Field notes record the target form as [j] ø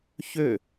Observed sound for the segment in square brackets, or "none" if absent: ç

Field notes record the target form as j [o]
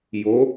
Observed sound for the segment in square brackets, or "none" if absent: o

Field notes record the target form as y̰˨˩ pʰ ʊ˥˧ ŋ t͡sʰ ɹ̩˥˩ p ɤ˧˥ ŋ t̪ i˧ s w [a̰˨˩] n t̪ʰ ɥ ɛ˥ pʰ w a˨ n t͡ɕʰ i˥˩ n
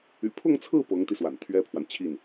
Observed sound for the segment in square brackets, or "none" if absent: a̰˨˩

